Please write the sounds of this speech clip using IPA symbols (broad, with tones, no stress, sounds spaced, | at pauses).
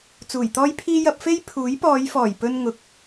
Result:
t͡s uː˨˩ j t̪ ɔː˥ j pʰ iː˥ j ɐ˧ p̚ f e˥ j pʰ uː˨˥ j p ɔː˨˧ j f ɔː˨˩ j p ɵ˧ n ŋ ʊ˨˥ k̚